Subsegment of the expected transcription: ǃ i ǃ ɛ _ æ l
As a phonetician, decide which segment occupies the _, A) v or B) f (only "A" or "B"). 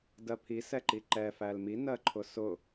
B